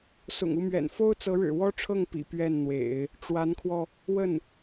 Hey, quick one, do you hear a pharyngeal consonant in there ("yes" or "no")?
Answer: no